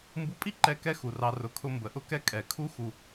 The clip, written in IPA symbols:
mbu˧pʼi˦ǃɛ˧ kɛ˦xu˨rɑ˧ rʊ˨kʰʊ˧ mbə˨ʔʊ˦kɛ˦ kʼɛ˨kʰu˦ xu˧

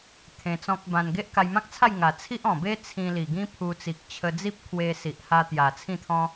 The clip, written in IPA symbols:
t̪ʰẽ˧t͡sɔ̃˦k̚bã˧n ɡe˦ʔka˧jmã˦k̚t͡sʰa˥˧j ŋa˨˩ t͡sʰi˦ʔɔ̃˨˩be˦ t͡sʰĩ˧li˨˩ ɡĩ˦pʰu˧ t͡si˨k̚t͡ɕʰə˧ d͡zi˦p̚kʰwe˧si˨ʔha˧ t̪ja˨˩t͡sʰĩ˥˧t̪ʰɔ̃˦

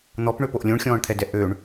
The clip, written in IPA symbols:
n̪ɔpɳøpoʔ lʲõɳxʲɔ̃ːɳt̪ʰɛdɛ ʔøɳ

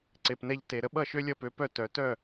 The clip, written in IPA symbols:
ǀe˩pnɛ˧ʎte˩ ɾə˥ ɓʌ˥˩ʃø˥lʲʌ˧pø˩˥ pœ˥˩tœ˩˥ tœ˥˩

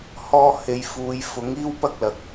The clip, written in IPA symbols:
hɔː˧he˨jfuː˨j fʊ˨˥ŋiː˥wpɐ˥k̚lɐ˨k̚

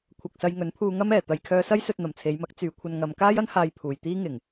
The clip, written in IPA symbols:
kʷʰɐ˨k̚ sɐ˧jŋɵ˨˥npʰuː˧ ŋɐ˥mɛː˨˩ t̪ɐ˨jkʰœː˧sɐ˥j sɵ˧t̚ n̪ɐ˨˩mt͡sʰe˨˧jmɐ˨˥k̚ t͡syː˨˧kʷʰɐ˧n ŋɐ˨˧mkaː˥jɐ˥n haː˧j pʰuː˨˩jt̪iː˥ ŋɪ˨˩ŋ

